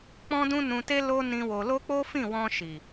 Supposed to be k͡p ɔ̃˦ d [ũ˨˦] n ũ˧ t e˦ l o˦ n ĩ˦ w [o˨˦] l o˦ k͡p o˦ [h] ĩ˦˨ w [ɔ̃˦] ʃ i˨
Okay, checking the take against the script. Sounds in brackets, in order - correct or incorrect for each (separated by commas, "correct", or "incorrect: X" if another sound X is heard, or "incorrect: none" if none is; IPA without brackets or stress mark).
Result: incorrect: ũ˦, incorrect: o˧, incorrect: f, incorrect: ɔ̃˧